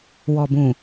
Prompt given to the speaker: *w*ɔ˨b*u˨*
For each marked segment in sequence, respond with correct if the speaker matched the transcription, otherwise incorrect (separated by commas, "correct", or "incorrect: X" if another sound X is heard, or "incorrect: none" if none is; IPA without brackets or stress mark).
correct, incorrect: ũ˨